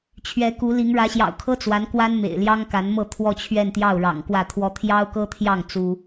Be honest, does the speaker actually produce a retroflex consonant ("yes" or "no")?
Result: yes